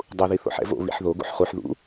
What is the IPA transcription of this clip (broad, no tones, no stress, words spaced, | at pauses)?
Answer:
dˤuði θo̰ħɛ̰vo̰ βḭħðo ɡo̰ħχuħ ðṵ